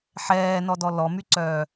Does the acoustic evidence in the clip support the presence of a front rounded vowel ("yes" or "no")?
yes